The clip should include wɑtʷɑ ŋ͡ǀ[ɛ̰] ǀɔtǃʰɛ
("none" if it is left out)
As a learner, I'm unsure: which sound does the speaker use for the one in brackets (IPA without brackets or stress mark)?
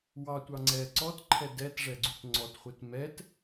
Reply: ɛ